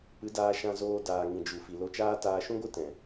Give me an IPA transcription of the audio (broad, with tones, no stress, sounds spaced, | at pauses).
p ɨ˨˦ d aː˧ ʃ ã˧ z oː˧ d aː˨ ŋ ĩ˨ d͡ʒ u˨ f i˨ l o˧ t͡ʃ aː˦ t aː˧ ʃ ũ˦ ɡʷ ɨ˦ t ɛ̃˨